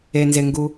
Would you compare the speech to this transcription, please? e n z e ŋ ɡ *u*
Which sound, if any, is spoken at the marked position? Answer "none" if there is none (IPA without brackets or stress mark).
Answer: u